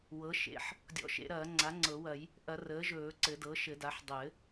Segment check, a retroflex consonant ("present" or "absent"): absent